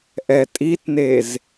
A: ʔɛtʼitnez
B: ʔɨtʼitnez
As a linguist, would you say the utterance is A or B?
A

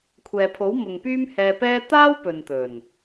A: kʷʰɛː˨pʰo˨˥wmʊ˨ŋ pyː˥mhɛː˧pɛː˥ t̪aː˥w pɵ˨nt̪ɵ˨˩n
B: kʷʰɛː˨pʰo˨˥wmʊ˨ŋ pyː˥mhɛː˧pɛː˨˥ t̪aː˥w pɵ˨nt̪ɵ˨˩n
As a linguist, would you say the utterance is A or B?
A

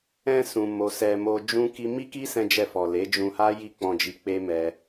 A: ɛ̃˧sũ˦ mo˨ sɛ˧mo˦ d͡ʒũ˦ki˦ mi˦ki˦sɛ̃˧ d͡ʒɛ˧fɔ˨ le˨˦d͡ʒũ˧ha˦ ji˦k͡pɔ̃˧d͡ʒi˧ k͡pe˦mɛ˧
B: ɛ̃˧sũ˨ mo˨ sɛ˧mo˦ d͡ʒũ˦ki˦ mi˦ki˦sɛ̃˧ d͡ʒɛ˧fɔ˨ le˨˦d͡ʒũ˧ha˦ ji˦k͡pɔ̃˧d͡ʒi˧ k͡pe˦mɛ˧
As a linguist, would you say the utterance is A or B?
B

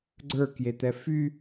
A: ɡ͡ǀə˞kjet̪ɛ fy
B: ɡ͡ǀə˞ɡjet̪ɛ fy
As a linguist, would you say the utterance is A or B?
A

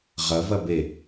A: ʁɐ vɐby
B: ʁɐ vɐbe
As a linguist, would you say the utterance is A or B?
B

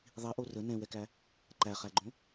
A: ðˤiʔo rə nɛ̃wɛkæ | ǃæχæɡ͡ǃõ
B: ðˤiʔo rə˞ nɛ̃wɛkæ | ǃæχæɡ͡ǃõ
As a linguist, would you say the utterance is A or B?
A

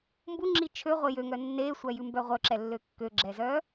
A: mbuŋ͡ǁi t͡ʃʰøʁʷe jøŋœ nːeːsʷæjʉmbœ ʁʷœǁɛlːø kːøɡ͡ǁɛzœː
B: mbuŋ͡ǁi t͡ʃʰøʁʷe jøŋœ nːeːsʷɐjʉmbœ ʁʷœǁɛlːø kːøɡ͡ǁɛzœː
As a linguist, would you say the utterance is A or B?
A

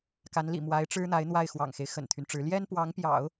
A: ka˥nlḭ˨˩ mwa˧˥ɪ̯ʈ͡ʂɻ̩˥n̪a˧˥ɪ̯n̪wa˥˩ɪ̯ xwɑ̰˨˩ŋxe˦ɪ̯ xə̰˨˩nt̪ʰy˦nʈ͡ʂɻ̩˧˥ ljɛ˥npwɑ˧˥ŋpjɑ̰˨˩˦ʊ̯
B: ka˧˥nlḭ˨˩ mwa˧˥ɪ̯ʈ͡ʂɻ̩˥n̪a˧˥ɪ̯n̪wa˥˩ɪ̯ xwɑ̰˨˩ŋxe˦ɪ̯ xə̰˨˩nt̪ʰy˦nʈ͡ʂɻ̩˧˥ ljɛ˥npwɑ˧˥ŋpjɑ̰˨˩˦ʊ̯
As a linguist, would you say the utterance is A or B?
B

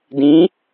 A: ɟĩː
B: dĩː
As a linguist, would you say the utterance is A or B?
B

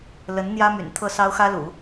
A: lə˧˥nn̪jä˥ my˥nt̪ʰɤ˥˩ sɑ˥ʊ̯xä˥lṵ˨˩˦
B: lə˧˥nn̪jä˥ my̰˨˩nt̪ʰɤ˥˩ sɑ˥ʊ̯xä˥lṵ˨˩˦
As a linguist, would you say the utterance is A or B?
B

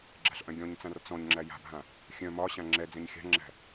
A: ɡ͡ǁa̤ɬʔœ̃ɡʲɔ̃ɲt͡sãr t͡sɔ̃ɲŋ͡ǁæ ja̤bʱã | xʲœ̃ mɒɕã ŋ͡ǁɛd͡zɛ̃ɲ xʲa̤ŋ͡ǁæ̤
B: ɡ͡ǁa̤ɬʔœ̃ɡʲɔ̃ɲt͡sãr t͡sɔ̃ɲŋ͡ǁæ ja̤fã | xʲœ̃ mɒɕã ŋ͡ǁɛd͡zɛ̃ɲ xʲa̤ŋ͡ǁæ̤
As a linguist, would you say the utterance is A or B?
A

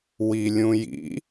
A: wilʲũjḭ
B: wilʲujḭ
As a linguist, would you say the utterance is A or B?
A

